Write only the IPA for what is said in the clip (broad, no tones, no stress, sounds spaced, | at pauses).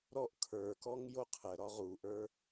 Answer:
ɾ ɔ ʔ kʰ ə˞ k ɔ ŋ j o qʰ ə ɾ ɒ ʁ u ʔ ə˞